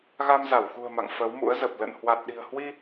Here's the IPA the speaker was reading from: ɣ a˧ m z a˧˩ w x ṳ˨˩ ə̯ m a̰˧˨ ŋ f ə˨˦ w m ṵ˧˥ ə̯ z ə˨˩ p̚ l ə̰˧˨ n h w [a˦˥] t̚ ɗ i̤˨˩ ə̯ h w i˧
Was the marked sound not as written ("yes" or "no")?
yes